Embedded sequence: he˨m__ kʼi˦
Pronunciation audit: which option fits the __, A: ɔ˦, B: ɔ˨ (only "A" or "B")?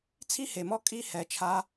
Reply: A